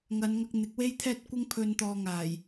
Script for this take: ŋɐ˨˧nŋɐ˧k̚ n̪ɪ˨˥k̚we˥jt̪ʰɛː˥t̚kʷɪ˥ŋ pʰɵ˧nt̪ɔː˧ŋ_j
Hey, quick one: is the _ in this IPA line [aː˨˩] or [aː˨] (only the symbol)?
aː˨˩